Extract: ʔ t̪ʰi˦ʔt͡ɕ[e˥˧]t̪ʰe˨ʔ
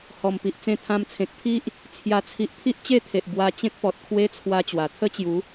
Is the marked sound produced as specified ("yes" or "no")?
yes